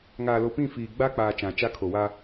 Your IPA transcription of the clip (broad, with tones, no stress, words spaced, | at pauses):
ŋaː˨lo˨pĩ˦˨ fiː˨ ɡ͡ba˦k͡paː˨ t͡ʃã˨t͡ʃa˦ kʰo˨wa˦